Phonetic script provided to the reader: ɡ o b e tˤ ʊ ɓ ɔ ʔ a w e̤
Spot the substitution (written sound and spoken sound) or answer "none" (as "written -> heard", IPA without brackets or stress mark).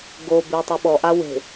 none